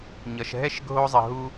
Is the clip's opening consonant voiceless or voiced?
voiced